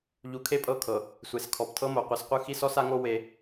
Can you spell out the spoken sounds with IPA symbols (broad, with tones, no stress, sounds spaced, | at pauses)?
ʎ u˨˦ kʰ e˦ pʼ ɤ˦˨ kʰ ɤ˨ | sʷ e˨ s kʰ ɔ˨ p tʰ ɤ˦ m o˨ qʷ ɛ˨ s qʷ ɯ˦ x i˦ s ɔ˦ s a˦ ŋ o˦ w e˦